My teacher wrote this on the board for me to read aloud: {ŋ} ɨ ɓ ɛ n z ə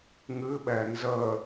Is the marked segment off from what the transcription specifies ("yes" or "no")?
no